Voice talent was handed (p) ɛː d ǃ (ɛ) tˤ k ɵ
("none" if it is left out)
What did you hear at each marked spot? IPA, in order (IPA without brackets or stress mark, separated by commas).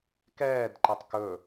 k, ɛ